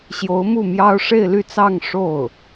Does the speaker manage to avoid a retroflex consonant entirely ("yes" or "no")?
no